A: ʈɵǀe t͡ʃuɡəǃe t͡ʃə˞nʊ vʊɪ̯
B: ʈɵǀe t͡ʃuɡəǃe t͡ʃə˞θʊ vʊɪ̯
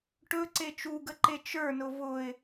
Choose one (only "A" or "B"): A